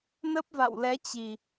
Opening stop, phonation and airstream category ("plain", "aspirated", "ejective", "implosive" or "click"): plain